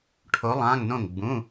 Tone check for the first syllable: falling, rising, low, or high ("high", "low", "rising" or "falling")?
rising